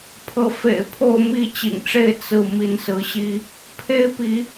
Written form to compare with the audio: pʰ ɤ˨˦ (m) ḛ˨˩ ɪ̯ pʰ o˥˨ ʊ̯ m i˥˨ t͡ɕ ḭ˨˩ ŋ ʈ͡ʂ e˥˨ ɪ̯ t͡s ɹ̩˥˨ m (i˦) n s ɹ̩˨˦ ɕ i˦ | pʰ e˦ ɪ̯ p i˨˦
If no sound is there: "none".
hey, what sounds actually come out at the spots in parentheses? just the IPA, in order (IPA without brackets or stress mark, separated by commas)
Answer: f, i˨˦